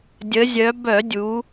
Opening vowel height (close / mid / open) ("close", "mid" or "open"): mid